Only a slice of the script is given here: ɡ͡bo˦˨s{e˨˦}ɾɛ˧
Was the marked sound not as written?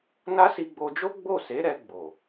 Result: no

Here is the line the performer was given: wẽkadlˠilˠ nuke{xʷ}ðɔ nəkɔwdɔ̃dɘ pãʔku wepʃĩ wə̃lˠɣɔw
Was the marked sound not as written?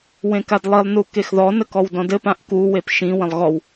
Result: yes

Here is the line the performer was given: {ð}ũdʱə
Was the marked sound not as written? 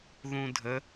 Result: no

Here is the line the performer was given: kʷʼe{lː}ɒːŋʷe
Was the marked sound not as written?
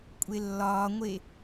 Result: no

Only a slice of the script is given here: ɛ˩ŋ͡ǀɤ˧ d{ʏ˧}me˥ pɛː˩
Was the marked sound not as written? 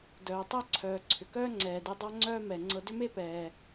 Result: yes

